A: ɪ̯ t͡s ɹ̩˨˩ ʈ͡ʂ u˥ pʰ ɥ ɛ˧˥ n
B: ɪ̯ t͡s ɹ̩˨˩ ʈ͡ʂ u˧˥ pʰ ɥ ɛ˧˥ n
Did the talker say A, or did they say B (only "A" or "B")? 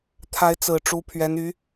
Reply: B